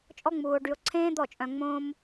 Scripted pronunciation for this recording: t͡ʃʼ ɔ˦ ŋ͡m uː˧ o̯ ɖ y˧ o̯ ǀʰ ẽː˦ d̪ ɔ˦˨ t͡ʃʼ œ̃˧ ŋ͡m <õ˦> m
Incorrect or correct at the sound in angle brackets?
correct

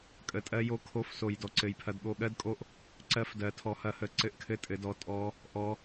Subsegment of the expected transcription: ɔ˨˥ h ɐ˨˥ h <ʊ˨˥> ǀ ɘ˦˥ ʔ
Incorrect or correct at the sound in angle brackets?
incorrect: ə˨˥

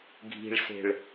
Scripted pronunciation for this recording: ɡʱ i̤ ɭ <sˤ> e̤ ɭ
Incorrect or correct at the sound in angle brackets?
incorrect: s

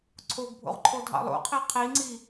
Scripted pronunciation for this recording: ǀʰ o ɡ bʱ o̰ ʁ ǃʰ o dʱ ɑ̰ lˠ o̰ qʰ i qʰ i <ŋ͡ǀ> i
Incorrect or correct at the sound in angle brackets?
correct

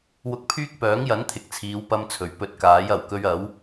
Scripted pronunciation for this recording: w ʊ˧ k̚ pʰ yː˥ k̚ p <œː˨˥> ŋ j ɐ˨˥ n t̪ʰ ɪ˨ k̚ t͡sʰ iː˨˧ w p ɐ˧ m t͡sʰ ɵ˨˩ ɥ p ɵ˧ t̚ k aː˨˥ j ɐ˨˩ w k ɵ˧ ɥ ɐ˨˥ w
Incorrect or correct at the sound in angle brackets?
correct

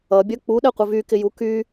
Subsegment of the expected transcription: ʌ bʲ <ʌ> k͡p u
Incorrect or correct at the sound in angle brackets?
correct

